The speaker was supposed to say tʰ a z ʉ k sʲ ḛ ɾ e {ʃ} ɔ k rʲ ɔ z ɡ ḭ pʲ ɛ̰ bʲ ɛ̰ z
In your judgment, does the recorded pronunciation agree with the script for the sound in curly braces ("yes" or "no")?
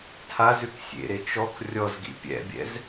no